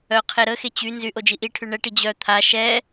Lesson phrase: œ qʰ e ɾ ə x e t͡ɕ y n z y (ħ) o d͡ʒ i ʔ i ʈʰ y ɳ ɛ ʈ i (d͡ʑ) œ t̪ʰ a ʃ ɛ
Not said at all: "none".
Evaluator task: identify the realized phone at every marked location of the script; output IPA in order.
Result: ʔ, d͡ʑ

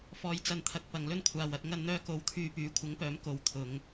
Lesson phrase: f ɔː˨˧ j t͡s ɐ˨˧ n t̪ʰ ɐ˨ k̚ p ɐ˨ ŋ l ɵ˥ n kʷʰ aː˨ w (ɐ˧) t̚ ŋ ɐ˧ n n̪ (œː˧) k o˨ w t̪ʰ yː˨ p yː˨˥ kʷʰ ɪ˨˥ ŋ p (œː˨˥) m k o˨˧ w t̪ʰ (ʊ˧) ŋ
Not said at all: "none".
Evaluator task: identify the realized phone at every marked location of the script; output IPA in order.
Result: ɐ˧, œː˧, œː˨˥, ʊ˨˧

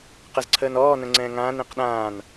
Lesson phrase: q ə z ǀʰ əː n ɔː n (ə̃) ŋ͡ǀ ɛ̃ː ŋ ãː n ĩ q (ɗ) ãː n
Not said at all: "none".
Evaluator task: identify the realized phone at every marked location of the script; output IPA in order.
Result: ə̃, ɗ

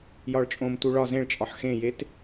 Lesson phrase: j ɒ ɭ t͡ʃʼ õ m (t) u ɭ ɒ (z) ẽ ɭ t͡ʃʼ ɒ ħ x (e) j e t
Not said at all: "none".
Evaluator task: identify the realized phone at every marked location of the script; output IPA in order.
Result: t, z, ẽ

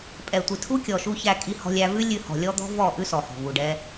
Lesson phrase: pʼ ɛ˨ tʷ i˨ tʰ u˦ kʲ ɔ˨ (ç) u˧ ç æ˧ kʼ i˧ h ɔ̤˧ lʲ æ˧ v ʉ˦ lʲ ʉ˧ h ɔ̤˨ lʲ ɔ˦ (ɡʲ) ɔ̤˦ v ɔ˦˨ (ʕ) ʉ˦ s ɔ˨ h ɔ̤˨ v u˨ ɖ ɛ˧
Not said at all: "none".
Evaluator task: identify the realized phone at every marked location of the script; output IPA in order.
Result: ʃ, d̪, ʔ

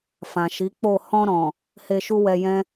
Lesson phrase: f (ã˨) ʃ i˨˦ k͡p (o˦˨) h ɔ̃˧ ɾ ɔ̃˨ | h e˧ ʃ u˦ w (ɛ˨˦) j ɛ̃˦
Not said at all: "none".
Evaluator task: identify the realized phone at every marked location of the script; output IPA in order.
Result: ã˨, o˦˨, ɛ˧

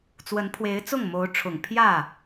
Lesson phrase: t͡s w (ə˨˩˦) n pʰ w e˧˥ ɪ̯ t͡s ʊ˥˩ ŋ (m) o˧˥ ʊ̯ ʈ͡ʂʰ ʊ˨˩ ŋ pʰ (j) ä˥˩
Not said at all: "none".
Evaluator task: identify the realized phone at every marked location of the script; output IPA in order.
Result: ə˧˥, m, j

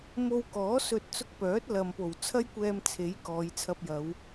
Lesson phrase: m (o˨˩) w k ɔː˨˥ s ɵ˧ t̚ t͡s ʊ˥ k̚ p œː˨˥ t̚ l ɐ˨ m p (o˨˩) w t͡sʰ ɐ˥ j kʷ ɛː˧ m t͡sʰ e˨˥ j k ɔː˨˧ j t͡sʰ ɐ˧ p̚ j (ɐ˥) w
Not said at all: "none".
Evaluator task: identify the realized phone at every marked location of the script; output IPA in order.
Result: o˧, o˨˩, ɐ˨˧

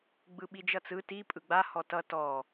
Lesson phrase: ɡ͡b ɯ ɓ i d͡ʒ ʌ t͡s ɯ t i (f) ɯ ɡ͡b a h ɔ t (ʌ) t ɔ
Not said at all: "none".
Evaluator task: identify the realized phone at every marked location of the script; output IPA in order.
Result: pʼ, ʌ

